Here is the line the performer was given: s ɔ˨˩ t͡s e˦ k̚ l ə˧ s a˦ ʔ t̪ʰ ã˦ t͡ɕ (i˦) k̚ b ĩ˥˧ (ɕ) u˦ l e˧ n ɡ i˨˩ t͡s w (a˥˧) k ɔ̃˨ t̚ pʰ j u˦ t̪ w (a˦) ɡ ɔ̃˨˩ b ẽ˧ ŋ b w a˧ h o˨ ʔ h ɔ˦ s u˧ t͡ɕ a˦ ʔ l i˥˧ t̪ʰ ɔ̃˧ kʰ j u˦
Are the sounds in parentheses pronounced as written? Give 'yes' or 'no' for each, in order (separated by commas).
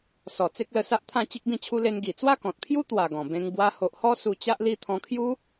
yes, no, yes, no